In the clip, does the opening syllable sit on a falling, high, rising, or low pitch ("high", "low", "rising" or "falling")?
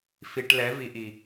low